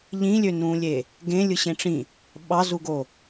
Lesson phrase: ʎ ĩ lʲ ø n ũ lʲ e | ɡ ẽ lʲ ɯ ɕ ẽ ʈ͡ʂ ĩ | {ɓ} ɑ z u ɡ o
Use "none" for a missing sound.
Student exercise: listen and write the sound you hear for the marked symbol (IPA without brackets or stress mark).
ɓ